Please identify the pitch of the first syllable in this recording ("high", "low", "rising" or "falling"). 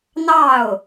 falling